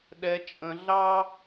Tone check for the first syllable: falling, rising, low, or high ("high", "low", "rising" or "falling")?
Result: high